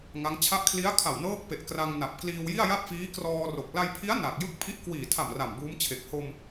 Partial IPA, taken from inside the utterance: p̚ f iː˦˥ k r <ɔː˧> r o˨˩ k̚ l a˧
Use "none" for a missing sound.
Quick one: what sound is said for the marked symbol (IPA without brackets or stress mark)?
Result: ɔː˧